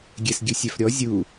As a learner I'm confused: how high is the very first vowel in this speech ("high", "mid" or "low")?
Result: mid